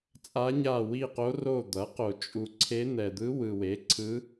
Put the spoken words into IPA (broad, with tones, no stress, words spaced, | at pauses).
t͡sʼa˧˥ɲa˦˨wi˦˨qo˧˥ ro˦˨d̪ʌ˩˥qo˨ t͡ʃʼu˨ ǀʰe˧˥n̪ɛ˨d̪ɯ˧˥ wɯ˨we˩˥ǀʰɯ˧˥